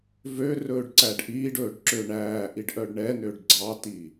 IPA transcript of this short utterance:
v ø r ɵː ɖ ǀ æ ɖ ʔ iː ɖ ɵː ɖ ǁ ø ɳ æː ʔ i ɖ ʔ œ ɖ ɳ ɛ n ø ɖ ɡ͡ǀ ɑ t i

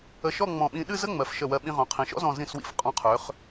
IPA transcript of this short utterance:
ə˧ ʃ ɔ˥˧ ŋ͡m ɔ̃˧˩ ɓ ĩ˧ ɗ ɨ˥˧ z ə˥ ŋ͡m ɜ˩˧ f ʃ ə˧˩ w ɜ˧ ɓ ĩ˧ ʁ õ˩˧ qʰ ĩ˩˧ ʃ ɔ̰˥ z ɔ̃˧˩ z ĩ˧˩ s w ḭ˧˩ f qʼ ɔ̃˧ qʰ ø˩˧ χ

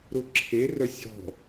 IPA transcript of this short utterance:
ɾ ʊ ǁʰ e r œ sʲ ɔ̤

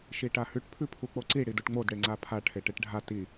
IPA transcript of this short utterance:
ʃ i ʈ a h ʉ ʈ pʰ ʉ pʰ u k͡p o ǀ i ɽ i d u ʈ ŋ͡m o d ɽ e ŋ͡ǀ a pʰ a ʈʰ e ʈ e ʈ ɖʱ a t i

